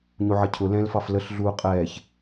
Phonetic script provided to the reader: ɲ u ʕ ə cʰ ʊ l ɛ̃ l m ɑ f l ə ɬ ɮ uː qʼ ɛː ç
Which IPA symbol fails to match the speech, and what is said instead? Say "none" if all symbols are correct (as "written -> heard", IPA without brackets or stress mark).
m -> f